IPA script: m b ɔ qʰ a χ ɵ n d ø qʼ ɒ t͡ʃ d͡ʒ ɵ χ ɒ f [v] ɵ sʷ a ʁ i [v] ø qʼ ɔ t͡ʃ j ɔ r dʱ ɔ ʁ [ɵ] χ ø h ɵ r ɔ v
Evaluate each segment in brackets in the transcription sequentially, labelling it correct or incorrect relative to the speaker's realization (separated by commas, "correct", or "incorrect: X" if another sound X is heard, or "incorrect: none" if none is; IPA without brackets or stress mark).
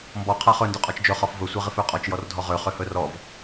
correct, incorrect: f, incorrect: ø